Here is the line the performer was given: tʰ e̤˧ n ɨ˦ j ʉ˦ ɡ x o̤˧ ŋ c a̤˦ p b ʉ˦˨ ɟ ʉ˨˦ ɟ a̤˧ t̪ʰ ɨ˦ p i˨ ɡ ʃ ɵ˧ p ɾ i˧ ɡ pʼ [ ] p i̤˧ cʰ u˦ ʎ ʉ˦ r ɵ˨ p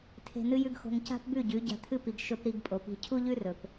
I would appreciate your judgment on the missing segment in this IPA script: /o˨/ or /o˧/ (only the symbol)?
o˨